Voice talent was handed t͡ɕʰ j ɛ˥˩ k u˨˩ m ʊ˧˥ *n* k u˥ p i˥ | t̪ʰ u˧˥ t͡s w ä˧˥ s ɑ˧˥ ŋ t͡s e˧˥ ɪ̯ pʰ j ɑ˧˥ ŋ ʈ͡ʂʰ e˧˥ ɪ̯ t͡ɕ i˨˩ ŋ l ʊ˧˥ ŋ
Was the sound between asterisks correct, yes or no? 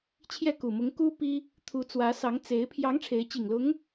no